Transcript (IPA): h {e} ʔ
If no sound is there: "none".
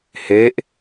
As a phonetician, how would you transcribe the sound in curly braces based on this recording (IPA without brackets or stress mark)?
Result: e